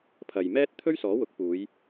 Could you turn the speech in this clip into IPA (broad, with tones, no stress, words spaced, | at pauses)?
pʰɐ˨jmɛː˥t̚ t̪ʰɵ˥ɥsɔː˨˥wʊ˨˥k̚puː˨˧j